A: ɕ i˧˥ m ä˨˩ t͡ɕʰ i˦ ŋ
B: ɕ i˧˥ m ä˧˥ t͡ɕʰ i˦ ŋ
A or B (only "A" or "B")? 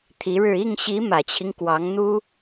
A